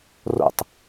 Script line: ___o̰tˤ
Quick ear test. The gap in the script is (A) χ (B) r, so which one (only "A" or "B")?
B